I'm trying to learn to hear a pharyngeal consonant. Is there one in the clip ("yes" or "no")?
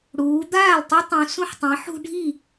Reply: yes